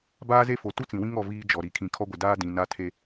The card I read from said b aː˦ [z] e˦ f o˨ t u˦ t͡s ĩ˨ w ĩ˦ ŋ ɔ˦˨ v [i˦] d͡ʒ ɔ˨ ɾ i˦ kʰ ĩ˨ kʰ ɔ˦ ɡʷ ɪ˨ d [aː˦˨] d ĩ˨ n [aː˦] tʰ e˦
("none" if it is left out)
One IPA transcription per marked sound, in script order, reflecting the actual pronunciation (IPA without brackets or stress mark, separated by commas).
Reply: z, iː˦, aː˦, a˦